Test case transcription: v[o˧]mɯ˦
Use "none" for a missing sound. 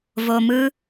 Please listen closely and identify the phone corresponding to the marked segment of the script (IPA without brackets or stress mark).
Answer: o˧